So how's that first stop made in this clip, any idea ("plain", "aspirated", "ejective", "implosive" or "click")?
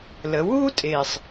ejective